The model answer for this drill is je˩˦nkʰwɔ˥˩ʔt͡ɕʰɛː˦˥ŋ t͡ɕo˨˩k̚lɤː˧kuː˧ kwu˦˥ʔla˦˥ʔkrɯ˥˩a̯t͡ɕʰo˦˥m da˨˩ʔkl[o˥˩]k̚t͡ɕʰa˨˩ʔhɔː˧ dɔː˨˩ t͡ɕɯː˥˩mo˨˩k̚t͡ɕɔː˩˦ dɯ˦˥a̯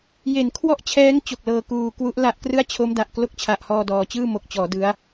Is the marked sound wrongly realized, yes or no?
no